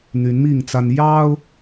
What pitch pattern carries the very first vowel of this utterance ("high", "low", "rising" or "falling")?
rising